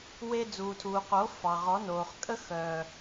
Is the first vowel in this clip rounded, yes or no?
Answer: no